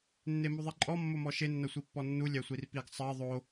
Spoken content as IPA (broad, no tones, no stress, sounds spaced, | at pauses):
nː e m u ðˤ i ǃʼ ɔ mː o m ɔ ʃ e nː ɐ sʷ i pː ɔ nː u lʲ æ sʷ i r p i ɡ sˤ ɜ ðˤ o